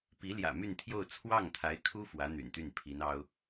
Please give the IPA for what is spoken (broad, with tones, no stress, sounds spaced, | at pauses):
p i˧˥ l j ä̰˨˩ m y˥˧ n t̪ʰ j o˥˧ ʊ̯ t͡sʰ w ɑ˥˩ ŋ t̪ʰ a˧˥ ɪ̯ kʰ u˥ f w ä˧˥ n̪ y̰˨˩ n t̪ y˥˩ n pʰ i˧˥ n ɑ˥ ʊ̯